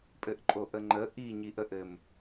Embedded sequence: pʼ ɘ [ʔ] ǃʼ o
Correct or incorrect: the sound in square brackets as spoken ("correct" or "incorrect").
correct